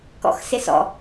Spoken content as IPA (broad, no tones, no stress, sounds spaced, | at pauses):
k ɔ̰ x s ɪ s ɔ̰